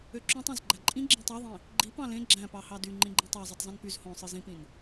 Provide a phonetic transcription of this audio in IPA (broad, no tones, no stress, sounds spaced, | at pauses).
ø ǁ õ tˤ ɑ̃ z ɡ͡ǃ æ ǃʼ ĩ ɡ͡ǁ ĩ tˤ ɑ ðˤ ĩ | ɡ͡ǃ i p ɑ̃ l ẽ ɡ͡ǁ æ̃ p ɑ h ɑ d y ŋ͡ǃ ĩ ɡ͡ǃ ĩ tˤ ɑ zˤ o tˤ zˤ ĩ n p y z h õ sˤ ɯ z ĩ p ĩ n